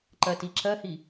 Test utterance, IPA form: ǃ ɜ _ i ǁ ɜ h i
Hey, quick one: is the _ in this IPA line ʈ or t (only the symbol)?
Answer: t